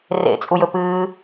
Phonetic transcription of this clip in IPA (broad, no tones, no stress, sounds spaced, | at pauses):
r ḛ t͡sʼ u j ɵ p ɨː